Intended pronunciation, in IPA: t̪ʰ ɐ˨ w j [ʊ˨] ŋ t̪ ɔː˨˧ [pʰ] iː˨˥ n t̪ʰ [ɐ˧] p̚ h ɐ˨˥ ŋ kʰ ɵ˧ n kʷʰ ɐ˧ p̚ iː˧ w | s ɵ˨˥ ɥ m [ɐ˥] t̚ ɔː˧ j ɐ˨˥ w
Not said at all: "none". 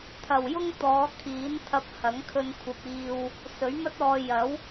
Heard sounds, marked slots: ʊ˥, kʰ, ɐ˧, ɐ˥

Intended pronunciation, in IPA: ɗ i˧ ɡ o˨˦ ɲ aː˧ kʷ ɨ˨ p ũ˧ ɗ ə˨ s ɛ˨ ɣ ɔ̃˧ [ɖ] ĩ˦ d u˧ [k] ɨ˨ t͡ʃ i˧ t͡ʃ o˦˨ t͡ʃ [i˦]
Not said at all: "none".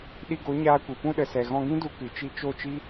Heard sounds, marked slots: ɡ, k, i˦

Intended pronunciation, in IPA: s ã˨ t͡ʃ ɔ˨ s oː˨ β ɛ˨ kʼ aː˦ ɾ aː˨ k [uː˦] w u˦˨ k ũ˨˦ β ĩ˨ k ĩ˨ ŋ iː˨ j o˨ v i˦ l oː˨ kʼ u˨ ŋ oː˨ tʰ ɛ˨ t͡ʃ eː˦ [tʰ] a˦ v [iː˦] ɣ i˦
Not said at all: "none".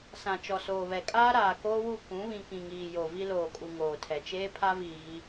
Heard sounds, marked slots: oː˦, pʰ, iː˨

